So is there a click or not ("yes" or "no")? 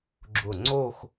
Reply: yes